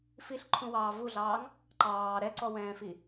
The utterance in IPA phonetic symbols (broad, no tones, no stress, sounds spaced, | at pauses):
f i ɬ ǃʰ ũ w ɑː v u ɮ ɑː ŋ | ǃ ɑː ɾ ɛ ǀ ɔ w ɛ̃ː f i